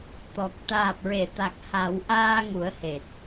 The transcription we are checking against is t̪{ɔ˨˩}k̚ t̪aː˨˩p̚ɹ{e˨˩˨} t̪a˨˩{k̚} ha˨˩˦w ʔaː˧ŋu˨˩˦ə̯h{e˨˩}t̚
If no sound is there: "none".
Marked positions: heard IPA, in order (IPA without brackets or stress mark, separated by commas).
ɔ˨˩, e˨˩˨, k̚, e˨˩